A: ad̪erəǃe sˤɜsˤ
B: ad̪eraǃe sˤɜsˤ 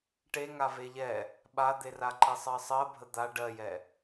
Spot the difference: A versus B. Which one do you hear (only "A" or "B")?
B